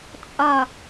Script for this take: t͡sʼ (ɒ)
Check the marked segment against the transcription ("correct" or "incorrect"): correct